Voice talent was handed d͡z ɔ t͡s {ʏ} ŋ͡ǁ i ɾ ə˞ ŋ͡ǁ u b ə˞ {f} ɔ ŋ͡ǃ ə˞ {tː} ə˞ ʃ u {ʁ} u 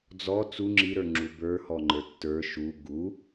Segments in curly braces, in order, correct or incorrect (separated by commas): incorrect, incorrect, correct, incorrect